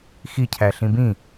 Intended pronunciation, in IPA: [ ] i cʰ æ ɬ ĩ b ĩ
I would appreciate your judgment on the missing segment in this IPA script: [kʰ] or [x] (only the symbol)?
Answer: x